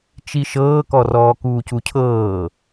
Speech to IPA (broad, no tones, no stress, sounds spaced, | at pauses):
t͡ʃ i ʃ ɤː k ɔ r ɔː k uː c u cʰ ɤː